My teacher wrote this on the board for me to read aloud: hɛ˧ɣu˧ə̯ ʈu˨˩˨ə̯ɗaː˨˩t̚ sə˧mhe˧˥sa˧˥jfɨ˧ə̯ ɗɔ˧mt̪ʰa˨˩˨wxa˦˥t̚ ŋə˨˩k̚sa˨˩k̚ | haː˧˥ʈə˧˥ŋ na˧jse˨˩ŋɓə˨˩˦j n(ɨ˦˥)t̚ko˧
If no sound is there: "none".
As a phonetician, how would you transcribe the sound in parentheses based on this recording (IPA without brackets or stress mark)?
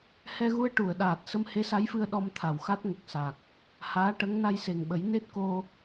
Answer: e˦˥